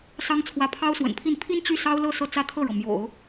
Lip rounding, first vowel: unrounded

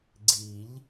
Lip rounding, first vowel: unrounded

